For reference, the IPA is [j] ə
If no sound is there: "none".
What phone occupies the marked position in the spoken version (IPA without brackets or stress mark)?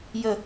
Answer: j